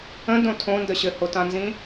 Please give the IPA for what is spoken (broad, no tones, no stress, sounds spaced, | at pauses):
ə̃ d õ tʰ õ n d ə ɕ ɘ h o t ã n z ĩ